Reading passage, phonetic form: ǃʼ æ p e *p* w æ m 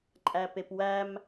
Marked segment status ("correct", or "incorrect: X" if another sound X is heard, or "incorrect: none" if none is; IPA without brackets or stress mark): correct